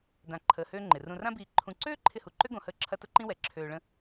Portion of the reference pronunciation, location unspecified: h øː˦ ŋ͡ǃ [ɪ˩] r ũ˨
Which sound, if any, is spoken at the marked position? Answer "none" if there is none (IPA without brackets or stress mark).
ɪ˩